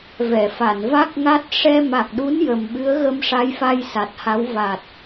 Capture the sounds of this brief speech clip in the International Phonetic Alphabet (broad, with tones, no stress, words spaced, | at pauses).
vɛ˨˩˨fa˨˩˨n va˦˥k̚ŋa˦˥t̚ ʂɛ˧ ma˨˩k̚ɗu˧˥n jə˨˩m ɓɨ˧˥ə̯ɣə˧mʂa˧˥jfa˧j sa˨˩t̚ha˧˥w va˨˩t̚